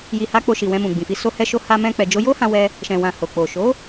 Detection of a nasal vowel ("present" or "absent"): present